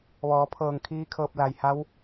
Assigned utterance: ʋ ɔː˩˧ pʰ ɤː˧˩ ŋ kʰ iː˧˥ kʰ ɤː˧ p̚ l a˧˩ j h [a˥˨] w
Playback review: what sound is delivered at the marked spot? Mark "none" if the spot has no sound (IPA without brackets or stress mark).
a˧˥